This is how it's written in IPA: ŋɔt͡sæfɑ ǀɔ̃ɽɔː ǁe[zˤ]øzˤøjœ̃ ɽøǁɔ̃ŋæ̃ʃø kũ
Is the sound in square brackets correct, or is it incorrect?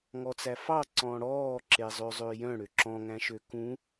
correct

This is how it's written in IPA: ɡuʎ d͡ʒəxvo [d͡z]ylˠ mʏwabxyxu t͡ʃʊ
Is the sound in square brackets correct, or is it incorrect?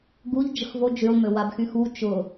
incorrect: d͡ʒ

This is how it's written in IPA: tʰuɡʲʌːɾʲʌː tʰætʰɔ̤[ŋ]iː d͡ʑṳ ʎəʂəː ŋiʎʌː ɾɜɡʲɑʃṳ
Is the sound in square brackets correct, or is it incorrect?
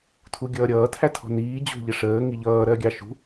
incorrect: n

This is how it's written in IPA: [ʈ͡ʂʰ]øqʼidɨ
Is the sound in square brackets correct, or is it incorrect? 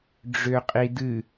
incorrect: ɖ͡ʐ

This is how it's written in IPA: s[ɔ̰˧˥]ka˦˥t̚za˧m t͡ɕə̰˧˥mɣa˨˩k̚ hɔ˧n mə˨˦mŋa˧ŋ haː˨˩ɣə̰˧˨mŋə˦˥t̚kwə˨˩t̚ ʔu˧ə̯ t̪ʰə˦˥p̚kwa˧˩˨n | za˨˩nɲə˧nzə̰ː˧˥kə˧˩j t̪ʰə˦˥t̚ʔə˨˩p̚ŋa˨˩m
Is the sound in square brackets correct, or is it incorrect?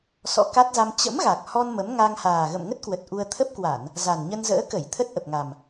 correct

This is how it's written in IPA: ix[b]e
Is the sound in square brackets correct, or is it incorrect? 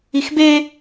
correct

